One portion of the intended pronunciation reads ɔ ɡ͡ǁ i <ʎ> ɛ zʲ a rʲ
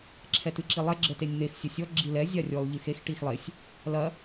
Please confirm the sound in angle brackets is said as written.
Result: no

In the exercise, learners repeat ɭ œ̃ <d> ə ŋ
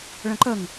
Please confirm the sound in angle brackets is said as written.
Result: no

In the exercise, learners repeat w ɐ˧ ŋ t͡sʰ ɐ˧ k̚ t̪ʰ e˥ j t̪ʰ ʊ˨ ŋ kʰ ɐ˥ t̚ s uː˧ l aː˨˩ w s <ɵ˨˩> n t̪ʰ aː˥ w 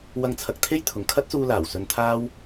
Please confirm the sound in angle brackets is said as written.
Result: no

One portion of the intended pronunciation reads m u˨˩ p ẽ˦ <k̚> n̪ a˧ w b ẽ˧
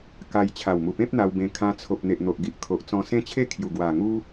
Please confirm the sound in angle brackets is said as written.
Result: no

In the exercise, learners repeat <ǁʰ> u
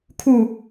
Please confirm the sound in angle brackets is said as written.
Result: no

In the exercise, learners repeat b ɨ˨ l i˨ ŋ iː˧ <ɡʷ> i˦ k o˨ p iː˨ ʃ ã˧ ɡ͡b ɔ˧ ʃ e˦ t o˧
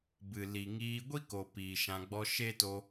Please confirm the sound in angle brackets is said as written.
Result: yes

